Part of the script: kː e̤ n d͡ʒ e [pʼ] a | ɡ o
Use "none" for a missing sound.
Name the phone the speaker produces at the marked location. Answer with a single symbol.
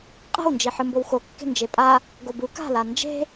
pʼ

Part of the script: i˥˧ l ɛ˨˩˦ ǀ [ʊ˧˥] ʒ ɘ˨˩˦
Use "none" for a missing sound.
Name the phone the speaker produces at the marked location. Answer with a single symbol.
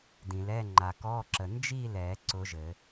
ʊ˧˥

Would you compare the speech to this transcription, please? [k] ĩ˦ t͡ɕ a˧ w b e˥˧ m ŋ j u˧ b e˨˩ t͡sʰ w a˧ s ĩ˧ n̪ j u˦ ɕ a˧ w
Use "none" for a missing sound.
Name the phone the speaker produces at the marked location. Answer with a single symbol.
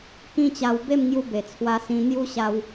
k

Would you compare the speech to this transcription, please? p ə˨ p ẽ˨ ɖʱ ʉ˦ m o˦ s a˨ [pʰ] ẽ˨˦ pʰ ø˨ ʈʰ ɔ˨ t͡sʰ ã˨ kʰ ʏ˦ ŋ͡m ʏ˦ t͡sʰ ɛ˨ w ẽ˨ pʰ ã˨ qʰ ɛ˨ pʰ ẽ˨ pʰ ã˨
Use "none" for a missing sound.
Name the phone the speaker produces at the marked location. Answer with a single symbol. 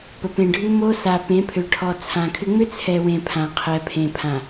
p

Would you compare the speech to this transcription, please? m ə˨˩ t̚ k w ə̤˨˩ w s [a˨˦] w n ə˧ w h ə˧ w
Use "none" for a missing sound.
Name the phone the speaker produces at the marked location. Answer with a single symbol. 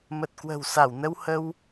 a˧˩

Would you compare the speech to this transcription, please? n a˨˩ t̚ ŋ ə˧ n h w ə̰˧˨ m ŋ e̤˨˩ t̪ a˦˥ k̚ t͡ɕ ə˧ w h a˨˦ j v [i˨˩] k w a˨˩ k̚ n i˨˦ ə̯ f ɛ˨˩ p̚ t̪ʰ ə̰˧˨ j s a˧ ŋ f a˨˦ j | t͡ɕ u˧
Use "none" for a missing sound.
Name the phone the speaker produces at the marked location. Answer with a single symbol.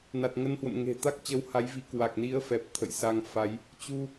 i˨˦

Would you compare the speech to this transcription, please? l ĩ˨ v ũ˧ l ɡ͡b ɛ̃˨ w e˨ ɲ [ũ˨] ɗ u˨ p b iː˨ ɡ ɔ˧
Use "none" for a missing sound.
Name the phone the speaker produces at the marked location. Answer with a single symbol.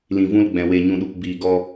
ũ˨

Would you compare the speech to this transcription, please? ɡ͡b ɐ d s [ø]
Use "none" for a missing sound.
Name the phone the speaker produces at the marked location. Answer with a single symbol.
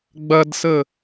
ə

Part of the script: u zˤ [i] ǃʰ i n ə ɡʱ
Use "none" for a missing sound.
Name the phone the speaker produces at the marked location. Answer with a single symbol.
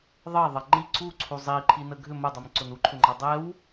i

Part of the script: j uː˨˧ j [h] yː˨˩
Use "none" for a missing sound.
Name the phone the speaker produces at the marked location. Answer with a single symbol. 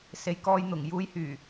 h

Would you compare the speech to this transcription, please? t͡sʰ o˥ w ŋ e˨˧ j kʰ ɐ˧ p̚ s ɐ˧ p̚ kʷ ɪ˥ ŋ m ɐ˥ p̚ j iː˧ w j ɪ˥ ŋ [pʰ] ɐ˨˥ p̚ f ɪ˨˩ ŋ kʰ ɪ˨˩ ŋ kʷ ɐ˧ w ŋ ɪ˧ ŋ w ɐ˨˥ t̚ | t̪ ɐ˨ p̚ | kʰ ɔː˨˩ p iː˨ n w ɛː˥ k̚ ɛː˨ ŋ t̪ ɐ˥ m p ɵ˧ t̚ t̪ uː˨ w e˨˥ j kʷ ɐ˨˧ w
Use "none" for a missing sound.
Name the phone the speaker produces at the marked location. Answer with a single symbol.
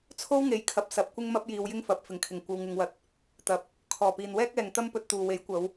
f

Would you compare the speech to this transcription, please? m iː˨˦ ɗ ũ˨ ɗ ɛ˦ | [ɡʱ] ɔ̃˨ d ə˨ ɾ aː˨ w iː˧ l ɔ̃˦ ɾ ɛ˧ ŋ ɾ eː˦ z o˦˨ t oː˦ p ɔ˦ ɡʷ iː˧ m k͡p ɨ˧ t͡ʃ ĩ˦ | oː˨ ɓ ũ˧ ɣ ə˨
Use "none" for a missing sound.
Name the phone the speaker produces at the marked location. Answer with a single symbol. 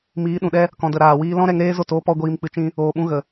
k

